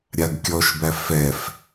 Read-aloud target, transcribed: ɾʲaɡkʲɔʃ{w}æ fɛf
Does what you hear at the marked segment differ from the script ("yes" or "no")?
yes